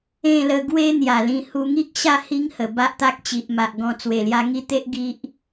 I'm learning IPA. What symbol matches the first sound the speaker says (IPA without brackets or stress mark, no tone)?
ẽ